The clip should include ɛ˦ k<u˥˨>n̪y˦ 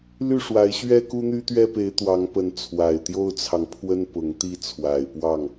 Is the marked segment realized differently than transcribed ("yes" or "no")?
yes